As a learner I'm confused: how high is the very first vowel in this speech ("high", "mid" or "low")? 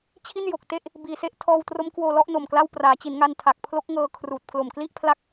high